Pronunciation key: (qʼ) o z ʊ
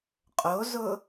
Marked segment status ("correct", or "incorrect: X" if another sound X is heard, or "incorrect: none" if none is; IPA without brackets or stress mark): correct